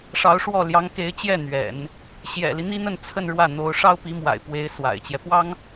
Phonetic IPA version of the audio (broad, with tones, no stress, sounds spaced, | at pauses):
ʂ ɑ˧˥ ʊ̯ ʂ w ɔ˥˩ l j ɑ˧˥ ŋ k e˧˥ ɪ̯ t͡ɕ j ɛ˥˩ n̪ ɥ ɛ̰˨˩˦ n | ɕ j ɛ̰˨˩ l i˦ n̪ i˥ n̪ ə˥˧ n t͡sʰ ə˥˧ n ɻ w ä˥˩ n̪ o˧˥ ʊ̯ ʂ ɑ˥ ʊ̯ p i˧˥ m w a̰˨˩ ɪ̯ p w e˧˥ ɪ̯ s w a̰˨˩ ɪ̯ t͡ɕ j ɛ˦ p w ɑ˥ ŋ